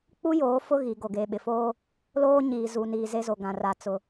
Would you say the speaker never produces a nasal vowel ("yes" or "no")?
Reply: no